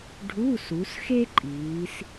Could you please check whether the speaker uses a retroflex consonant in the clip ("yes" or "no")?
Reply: yes